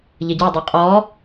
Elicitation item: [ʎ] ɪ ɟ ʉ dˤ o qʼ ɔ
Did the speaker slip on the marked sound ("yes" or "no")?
no